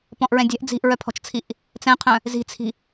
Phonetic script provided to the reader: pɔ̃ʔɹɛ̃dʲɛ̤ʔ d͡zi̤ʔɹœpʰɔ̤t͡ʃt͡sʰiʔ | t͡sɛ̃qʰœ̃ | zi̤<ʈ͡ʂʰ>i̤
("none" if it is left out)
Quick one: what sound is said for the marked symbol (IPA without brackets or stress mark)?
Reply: t͡sʰ